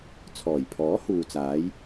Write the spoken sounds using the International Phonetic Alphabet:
t͡sʰ ɔː˨˩ j pʰ ɔː˨˥ h uː˨ t͡s aː˨˧ j

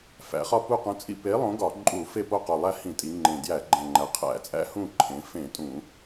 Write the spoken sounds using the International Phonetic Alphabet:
f æ̰˩˧ χ ɒ˦˨ p u˦˨ q ũ˨˥ t͡sʼ ḭ˦˨ p e˨˥ lˠ õ˨˥ ɡ ɒ˧˩˧ ǃʼ u˧˩˧ f e˦˨ p o˦˨ q u˨˩ lˠ æ˦˨ h ĩ˧˩˧ tʼ i˩˧ ŋ͡ǃ ẽ˨˩ d j æ˧˩˧ ɡ͡ǃ æ̃˨˩ ŋ͡ǃ æ˩˧ qʰ æ̰˧˩˧ t͡sʼ æ̰˦ h ũ˦˨ ǃʰ ẽ˩˧ f ẽ˧˩˧ tʼ ũ˧˩˧

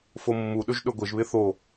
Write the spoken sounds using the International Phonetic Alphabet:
f o mː u ɗ ɵ ʒ ɗ ɵ ɡʷ ɪ ʒ β ɪ θ o

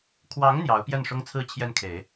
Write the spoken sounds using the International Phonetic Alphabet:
kʰ w ɑ˧˥ ŋ n̪ j ɑ˧˥ ʊ̯ p j ɛ˥˩ n ʂ ʊ˥ ŋ t͡sʰ ɹ̩˥˧ t͡ɕʰ j ɛ˥˩ n kʰ e˨˩˦ ɪ̯

